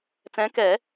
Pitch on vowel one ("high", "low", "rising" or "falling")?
rising